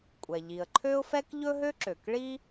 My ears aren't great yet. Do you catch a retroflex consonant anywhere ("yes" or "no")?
yes